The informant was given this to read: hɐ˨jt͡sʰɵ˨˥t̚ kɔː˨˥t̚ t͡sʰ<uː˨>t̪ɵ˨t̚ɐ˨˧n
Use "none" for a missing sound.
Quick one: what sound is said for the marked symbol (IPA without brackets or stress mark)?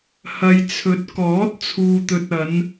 uː˨